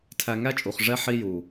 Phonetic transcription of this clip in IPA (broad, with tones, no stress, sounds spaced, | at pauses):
tʰ æ˧ ŋ æ˦ t͡ʃʼ u˨ χ ʐ ɛ˦ ħ i˦ j u˨